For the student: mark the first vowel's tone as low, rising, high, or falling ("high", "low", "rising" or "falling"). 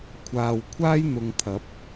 low